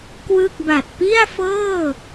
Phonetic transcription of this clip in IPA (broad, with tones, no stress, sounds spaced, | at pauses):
k w ɯ˥˩ k̚ b a˨˩ t̚ p i˥˩ a̯ f ɤː˥˩